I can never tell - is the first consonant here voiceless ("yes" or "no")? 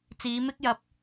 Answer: yes